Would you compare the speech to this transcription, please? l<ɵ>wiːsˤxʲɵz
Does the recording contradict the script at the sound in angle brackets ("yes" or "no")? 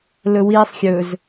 no